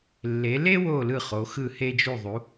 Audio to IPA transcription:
lː e˩˧ l e˥ w o˧˩ l ɯ˧˩ χ o˩˧ x ɯ˧˩ h e˧ d͡ʒ u˧˩ ðˤ u˩˧

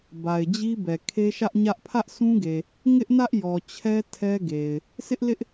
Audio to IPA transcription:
b a˨ ɪ̯ d͡ʑ i˦ b ɛ˨ kʰ e˦ ʃ ä˦ ʔ ɲ ä˦ ʔ pʰ ä˦ ʔ sʰ ũ˦ ɡ e˨ | ŋ ɪ˦ ʔ n ä˦ ʔ j ɔ˨ t͡ɕʰ ɛ˦ tʰ ɛ˦ ɡ e˨ ɪ̯ | sʰ ɪ˦ ʔ l ɪ˦ ʔ

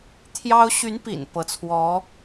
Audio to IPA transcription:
t̪ʰ j ɑ˥ ʊ̯ ɕ y˧˥ n p ḭ˨˩ n p ɤ˧˥ t͡sʰ w ɔ˧˥

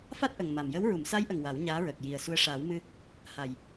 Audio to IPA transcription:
f a˦˥ t̚ ʔ ə˨˩ ŋ m a˨˩ m j ə˧˥ w ɹ u˨˩˨ m s a˧˥ j ʔ ə˨˩ ŋ w a˨˩˦ w ɲ aː˧˥ ɹ əː˨˩ k̚ j i˨˩ ə̯ s u˧ ə̯ ʂ aː˨˩˦ w m ɨ˧ | h a˨˩ j

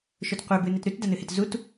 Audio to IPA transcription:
ʃ ɵ t qʷ e b ɨ n e t ɾ ʉ t d ɐ n ɨ h e t z u t

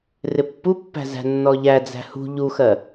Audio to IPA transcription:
r ɪ pː u pː æ̤ z æ̤ nː ɔ ʎ æ d͡z æ̤ h ṳ ʎ u x ɜ

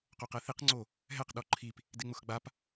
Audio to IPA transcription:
q o q ɛ θ i q ŋ͡ǀ o | ɦ ɛ q ɗ ɔ ǃʰ i p | d ɪ ŋ͡m ʊ x ɡ͡b a p

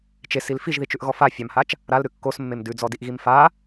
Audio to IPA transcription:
t͡ʃ e s i l f i ʒ ð i t͡ʃ ʉ ʔ ɣ ɔ f a fʲ a m h a t͡ʃ | ɾ a l ɾ ʉ kː o s mː e m d ʉ d͡z ɔ d i ʔ ɣ i m f a

